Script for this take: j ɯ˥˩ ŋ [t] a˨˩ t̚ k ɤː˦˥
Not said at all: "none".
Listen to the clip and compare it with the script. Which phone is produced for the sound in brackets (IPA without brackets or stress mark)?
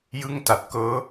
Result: t